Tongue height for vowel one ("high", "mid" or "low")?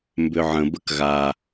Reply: high